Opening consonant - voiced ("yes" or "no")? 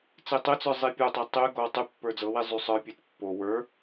no